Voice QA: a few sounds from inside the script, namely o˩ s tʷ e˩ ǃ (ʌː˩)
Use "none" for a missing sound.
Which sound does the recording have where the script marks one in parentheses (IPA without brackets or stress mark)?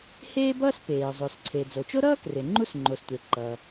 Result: ʌː˩